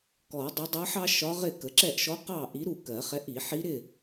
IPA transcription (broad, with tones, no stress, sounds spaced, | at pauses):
k ɔ˨˩˦ dˤ ʌ˧˥ dˤ ʌ˧˥ ħ ɑ˥ ʃ ɒ˧˥ ʁ ɪ˥˨ k ə˩˥ ǁ ɛ˥˨ ʔ ʃ ɔ˧˥ q ɑ˥˨ ʔ i˧˥ ɾ u˥˨ k ɜ˨˩˦ χ ɛ˧˥ ʔ i˨˩˦ ħ i˧˥ ɾ ɪ˥˨